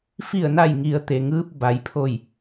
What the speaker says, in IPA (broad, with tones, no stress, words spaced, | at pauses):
fi˧˩ə̯na˧˩jŋi˩˧ə̯ t̪e˩ŋɯː˧p̚ ba˩˧jpʰo˧˩j